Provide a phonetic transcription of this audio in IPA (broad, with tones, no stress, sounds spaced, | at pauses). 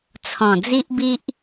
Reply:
t͡sʰ ɔ̃˨˩ d͡z i˦ ʔ b i˦ ʔ